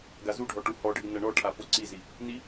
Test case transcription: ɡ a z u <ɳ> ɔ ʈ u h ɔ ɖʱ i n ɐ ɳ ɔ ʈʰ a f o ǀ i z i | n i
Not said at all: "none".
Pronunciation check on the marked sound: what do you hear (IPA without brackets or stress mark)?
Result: ɖʱ